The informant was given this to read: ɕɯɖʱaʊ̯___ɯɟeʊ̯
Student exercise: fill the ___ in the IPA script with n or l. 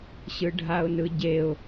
n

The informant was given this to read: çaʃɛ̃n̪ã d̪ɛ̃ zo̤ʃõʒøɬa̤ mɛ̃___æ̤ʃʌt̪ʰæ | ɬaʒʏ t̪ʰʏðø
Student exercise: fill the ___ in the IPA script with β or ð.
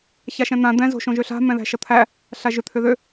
ð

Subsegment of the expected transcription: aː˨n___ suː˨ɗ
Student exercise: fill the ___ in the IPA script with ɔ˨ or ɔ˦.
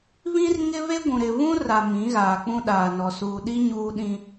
ɔ˨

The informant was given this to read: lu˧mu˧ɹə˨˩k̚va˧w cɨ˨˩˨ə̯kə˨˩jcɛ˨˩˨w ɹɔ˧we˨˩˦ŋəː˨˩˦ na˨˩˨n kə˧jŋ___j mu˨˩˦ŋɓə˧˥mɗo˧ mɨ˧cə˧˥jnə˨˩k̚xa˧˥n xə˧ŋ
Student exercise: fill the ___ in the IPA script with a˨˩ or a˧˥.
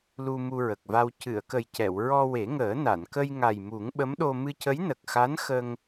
a˨˩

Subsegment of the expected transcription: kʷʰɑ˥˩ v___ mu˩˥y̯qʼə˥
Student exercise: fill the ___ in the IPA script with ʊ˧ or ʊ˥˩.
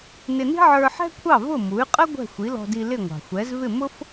ʊ˥˩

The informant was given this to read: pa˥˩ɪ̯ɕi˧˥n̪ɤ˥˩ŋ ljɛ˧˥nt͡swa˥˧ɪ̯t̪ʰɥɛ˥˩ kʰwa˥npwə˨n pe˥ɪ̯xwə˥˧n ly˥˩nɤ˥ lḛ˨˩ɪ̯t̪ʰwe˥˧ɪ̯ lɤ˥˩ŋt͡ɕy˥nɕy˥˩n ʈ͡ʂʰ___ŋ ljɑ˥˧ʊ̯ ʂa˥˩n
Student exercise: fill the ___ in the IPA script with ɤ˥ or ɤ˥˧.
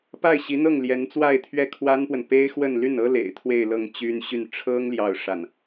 ɤ˥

